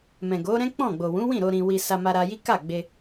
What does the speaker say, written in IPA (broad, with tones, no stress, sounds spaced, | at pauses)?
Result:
m ɛ̃˨ ɡ o˨˦ ɾ ɛ̃˦ k͡p ɔ̃˦˨ ɡ͡b o˨ w ũ˨˦ w ĩ˦˨ ɾ o˧ ɾ ĩ˧ w i˧ s a˧ m a˧ ɾ a˧ j i˦ k a˦˨ ɡ͡b e˧